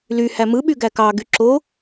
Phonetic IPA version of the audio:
l y h æ m ɯ ɓ y ɡ æ k ɑ ɡ y ǁ o

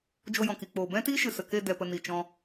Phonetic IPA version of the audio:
d͡ʒ o˧ j ɔ̃˨ k i˨ k͡p oː˨ b ɛ̃˦ t iː˦ ʃ ɨ˨ s ə˨ k e˦˨ d ɛ˨ p ə˨ n i˨ t͡ʃ ɔ̃˧

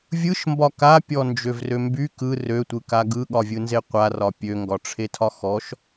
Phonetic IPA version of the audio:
vʲ ɯ ʃ m b ɒ k a pʲ ɔ n d͡ʒ ø v r ø m b y k ɯ r ø tʷ ɯ k a ɡ ɯ ɠ ɒ vʲ ɯ n z e qʷ a r ɒ pʲ ø ŋ ɡ ɒ ʈ͡ʂʰ e tʰ ɒ x ɔ ʃ

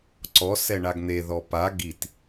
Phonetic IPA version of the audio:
ǀ ɔ s ɛ ɳ a ɡ n̪ e ð ɔ p a ɡ i t

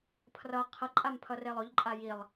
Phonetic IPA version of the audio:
pʰ r ʌ qʰ ʌ ǃʼ a m pʰ ʌ r e lˠ o ʎ ǃʼ a j i lˠ

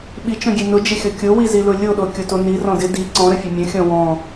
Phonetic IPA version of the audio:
ɓ i t͡ʃ ɔ̃ ɡʲ e n ʊ d͡ʒ ɪ xʲ ɔ kʲ o w i z i l ʊ lʲ o ɗ o kʲ o t o n i r ɔ̃ d ɪ d i ǀ ɔ̃ ɾ ə fʲ ə mʲ ə̃ xʲ ɔ̃ w ɔ̃

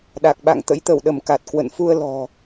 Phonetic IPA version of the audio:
ɗ a˨˩ k̚ ɓ a̰˧˨ ŋ t̪ ə̰˧˥ j t̪ ə˧˩ w ɗ ə˧˩ m k a˨˩ t̚ k w ə̰˧˨ n f u˧ ə̯ l ɔ̤˨˩

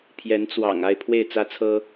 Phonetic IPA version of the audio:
pʰ j ɛ˧˥ n t͡s w ɑ̰˨˩ ŋ a˥˧ ɪ̯ pʰ w e˥˩ ɪ̯ t͡s ä˥ t͡sʰ ɤ˥

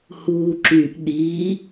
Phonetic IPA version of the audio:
h uː ǁ y ʔ ɗ i

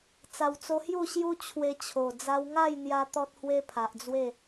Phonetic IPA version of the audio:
t͡s a˨˩ w t͡s o˧ h j u˥˧ ɕ j u˦ t͡ɕʰ w e˧ t͡ɕʰ o˨˩ d͡z a˧ w ŋ a˥˧ j n̪ j a˧ t̪ ɔ˦ t̚ h w e˦ pʰ a˨ ʔ d͡z w e˥˧

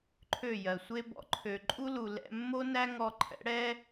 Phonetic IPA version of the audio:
ǃʰ ø˦˨ j ɜ˨ sʷ e˦ b ɔ̰˨ ǃʰ ø˨ ǃʼ u˦ l u˨ l ɛ̰˧ mː o˦ n æ˦ ŋ ɔ˧ ǃʰ ɛ̰˨˦ ɽ ɛ˦

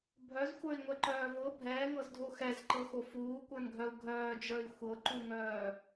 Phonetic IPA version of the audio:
bʱ œ z xʷ ə˞ i̯ ŋʷ ɛ ǃ œː v ɤ bʱ ɛː ŋ ɤ z dʱ o x ɛ z ǃ ɤ x o f uː kʷ ə˞ n ɡʱ œ u̯ ɡʱ œː d͡ʒ ə˞ i̯ xʷ ɤ ǃ u ŋ œː

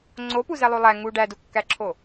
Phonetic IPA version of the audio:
ŋ͡ǀ o p u z æ lˠ o lˠ æ ŋ u ɖ æ d u kː æ ǁʰ o

